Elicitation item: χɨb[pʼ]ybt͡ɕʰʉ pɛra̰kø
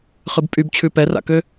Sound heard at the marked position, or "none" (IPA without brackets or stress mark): pʼ